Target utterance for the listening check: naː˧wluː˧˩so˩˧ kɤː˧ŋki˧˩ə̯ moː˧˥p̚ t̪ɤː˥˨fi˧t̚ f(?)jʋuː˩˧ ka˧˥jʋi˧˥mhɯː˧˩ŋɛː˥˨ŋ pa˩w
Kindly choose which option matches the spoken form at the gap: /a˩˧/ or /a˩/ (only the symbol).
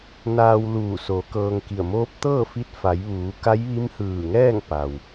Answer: a˩˧